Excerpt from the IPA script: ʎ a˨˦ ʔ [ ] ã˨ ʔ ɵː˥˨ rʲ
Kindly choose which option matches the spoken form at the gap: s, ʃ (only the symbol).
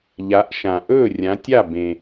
ʃ